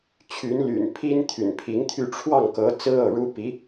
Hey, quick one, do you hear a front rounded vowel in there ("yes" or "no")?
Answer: yes